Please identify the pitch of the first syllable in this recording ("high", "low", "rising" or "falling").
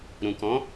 low